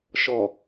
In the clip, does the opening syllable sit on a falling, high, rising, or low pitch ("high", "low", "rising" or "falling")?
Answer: low